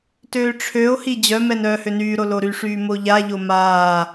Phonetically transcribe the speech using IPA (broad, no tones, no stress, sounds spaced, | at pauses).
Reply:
t øː ʈ͡ʂʰ ø o̯ h i d͡ʑ œ m ɛ n œː h ø n yː ɾ o l o ɾ y ʂ yː m o ʎ a ʎ o m aː